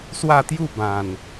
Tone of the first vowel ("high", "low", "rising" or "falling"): falling